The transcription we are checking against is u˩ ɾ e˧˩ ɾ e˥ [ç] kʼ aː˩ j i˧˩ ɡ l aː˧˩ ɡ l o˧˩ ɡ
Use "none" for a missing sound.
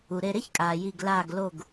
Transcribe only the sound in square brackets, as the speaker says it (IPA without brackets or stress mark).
ç